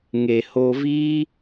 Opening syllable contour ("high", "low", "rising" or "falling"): low